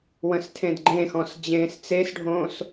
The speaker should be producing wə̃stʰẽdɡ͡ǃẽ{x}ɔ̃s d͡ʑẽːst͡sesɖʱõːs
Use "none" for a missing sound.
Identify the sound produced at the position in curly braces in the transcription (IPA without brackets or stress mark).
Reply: x